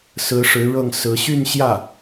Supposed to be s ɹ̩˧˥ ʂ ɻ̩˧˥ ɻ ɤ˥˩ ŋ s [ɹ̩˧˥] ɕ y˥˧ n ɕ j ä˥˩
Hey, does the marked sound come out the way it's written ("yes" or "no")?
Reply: yes